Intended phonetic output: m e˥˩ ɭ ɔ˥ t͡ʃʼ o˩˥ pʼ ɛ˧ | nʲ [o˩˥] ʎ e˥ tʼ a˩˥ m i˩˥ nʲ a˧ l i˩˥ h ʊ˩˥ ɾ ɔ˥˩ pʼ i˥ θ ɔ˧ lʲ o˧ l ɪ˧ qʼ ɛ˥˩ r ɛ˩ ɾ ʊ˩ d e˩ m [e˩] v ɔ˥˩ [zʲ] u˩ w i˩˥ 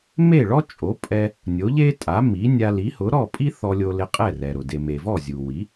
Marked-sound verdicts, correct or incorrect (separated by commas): correct, correct, correct